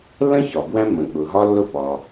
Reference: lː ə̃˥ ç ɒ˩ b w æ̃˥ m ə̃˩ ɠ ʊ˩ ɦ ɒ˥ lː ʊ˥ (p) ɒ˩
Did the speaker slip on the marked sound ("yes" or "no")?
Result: no